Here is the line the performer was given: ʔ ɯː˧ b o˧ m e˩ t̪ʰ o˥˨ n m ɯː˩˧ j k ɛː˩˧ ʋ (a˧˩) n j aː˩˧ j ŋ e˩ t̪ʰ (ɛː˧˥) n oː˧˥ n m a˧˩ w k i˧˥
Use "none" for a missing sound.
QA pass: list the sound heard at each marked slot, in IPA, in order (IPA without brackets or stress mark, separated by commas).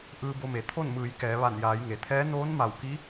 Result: a˧˩, ɛː˧˥